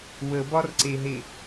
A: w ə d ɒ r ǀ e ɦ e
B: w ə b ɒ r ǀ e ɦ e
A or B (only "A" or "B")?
B